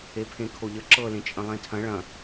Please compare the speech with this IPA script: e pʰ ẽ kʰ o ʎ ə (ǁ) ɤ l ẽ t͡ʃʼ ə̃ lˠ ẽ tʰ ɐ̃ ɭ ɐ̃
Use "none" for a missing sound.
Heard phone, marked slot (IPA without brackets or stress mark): ǁ